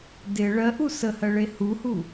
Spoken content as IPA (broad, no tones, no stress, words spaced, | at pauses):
dɪ ɭɜʔu səhɜɭe huhu